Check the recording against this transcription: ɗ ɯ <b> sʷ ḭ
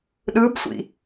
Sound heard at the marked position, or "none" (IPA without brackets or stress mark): b